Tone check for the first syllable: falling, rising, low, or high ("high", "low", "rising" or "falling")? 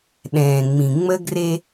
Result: low